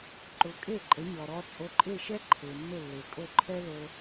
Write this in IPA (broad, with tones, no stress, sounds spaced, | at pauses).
ǃ ʊ˩˥ kʼ e˥˩ ǃʼ ə˩˥ ɲ ɔ˩ ɾ ɔ˧ t͡sʼ o˧ ǃʼ e˥˩ ʃ ɛ˥ ǃʰ e˩ nː ʊ˥˩ lː e˩ kʼ o˥˩ ǃʰ ɛ˥ l o˧